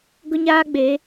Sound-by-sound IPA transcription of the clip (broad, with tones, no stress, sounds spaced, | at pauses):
ɡ ʊ˦ ɲ aː˦ ɡ͡b e˨˦